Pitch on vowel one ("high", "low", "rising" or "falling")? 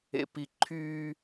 low